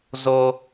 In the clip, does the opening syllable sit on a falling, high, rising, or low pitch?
low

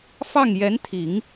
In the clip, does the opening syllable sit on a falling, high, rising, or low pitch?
falling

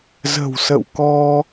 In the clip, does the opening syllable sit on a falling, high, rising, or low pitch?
low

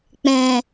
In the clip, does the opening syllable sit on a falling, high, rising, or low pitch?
low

